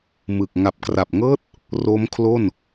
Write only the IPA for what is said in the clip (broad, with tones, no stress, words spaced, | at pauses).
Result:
mɯ˨˩k̚ ŋa˨˩p̚kra˨˩p̚ŋɤː˦˥t̚ | ro˦˥mkʰlo˥˩n